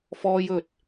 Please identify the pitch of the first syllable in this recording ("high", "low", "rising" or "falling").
high